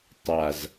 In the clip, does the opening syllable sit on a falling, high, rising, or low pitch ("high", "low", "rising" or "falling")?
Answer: low